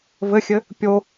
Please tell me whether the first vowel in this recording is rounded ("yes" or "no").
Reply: no